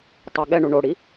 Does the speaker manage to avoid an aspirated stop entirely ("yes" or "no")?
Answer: yes